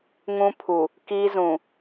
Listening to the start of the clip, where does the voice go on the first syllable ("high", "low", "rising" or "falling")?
high